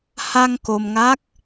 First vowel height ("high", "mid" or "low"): low